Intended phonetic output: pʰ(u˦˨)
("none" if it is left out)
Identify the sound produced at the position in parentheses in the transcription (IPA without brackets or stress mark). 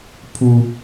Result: u˦